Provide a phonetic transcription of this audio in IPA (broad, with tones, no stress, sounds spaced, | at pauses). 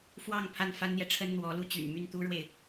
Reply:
f w ɑ˥˧ ŋ pʰ a˥˩ n f a˥ n n̪ j ɛ˨ ʈ͡ʂʰ ə˥ n n̪ w ɔ˧˥ l u˧˥ t͡ɕ y̰˨˩ n m y˥˩ n t̪ u˥ ɻ w e˨ ɪ̯